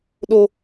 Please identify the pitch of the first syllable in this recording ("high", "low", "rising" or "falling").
high